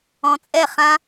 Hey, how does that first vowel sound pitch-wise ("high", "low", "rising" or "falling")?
low